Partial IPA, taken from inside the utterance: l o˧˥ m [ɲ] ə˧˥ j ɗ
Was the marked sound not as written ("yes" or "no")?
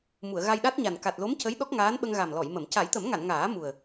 yes